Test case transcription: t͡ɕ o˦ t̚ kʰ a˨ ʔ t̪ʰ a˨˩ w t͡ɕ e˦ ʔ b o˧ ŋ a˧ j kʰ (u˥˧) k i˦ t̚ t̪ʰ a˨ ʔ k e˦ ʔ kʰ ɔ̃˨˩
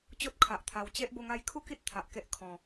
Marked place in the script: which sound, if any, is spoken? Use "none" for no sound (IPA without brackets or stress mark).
u˥˧